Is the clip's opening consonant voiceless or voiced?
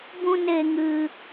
voiced